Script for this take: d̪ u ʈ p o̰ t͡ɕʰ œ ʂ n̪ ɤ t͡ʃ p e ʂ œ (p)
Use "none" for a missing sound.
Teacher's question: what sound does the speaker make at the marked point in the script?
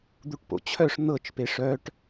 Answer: ʈ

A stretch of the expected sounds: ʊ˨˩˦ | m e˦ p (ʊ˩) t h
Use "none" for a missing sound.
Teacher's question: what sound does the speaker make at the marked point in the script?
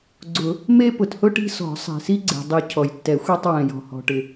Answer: ʊ˩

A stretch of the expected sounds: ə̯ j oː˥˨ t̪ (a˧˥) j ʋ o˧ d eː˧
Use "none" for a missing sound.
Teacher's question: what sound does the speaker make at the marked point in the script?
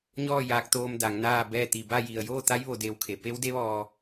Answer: a˧˥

